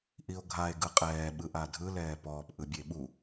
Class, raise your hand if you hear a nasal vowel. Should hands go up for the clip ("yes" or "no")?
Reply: no